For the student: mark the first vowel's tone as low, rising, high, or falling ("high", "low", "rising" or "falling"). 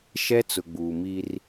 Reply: high